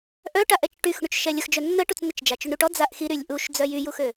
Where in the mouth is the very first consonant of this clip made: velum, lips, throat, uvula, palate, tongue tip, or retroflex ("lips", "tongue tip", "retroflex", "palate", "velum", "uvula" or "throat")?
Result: throat